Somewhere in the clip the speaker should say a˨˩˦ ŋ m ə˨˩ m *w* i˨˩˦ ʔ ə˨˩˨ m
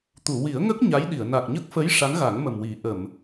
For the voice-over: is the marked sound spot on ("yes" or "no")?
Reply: yes